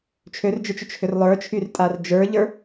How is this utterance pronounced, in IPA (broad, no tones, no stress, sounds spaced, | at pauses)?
t͡ʃʰ ø r d͡ʒ ə˞ t͡ʃ ʏ t͡ʃ h ʏ r lˠ ə˞ t͡ʃʰ y r tʼ a r d͡ʒ ə˞ ʎ ə˞